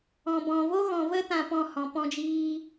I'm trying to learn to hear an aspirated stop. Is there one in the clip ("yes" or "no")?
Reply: no